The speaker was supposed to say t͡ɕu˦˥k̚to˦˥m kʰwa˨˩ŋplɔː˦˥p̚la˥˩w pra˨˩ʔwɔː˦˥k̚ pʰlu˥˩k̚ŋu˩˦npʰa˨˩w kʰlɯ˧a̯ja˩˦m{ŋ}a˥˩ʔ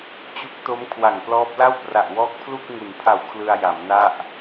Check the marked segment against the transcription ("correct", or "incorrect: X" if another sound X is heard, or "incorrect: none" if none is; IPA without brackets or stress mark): incorrect: n